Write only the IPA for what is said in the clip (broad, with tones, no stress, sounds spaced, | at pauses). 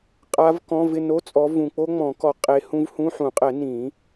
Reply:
qʼ a˦˥ v k ɔ̃˧˥˧ v ɪ˥˧ n o˧˥˧ t͡sʼ ɔ˨˦ v ũ˨ k͡p o˦˥ ŋ͡m ɔ̃˨˩˦ k ɔ˨ qʼ e˨˦ h ũ˦˥ v h ũ˧˥˧ ħ ũ˨˩˦ qʼ ɛ˨˩˦ n ĩ˨˩˦